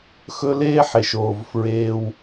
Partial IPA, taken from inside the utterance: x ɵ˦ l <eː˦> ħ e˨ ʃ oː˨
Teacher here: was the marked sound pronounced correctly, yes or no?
yes